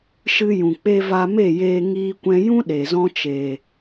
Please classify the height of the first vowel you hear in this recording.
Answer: high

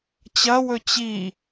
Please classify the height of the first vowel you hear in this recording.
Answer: low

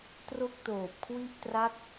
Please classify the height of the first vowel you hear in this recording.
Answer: mid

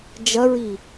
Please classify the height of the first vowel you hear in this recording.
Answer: low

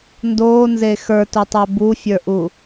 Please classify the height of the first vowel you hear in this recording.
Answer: mid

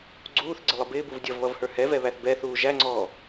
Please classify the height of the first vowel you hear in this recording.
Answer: high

